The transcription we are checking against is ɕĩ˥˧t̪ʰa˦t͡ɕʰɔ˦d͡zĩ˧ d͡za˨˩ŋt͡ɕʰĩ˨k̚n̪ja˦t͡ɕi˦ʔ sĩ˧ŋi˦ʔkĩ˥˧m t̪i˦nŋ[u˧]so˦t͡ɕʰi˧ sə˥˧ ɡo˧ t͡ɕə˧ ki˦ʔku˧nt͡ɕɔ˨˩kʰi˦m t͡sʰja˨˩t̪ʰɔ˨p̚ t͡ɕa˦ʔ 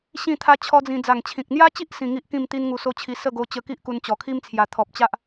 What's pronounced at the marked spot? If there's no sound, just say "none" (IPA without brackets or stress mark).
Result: u˧